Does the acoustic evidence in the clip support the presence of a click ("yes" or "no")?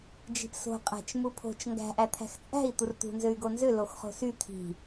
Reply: no